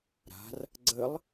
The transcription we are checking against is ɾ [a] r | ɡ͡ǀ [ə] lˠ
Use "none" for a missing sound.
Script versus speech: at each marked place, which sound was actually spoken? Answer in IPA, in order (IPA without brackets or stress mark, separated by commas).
a̤, ə